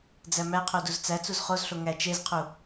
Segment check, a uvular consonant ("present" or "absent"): present